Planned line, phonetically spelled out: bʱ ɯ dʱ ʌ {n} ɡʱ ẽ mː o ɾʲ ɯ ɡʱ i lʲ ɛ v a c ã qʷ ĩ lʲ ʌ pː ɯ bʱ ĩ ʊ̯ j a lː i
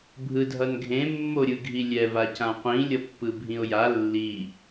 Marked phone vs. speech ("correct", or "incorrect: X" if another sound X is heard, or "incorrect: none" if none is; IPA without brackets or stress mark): correct